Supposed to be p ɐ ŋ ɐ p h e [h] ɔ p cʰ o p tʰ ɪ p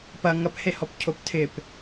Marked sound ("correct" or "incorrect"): correct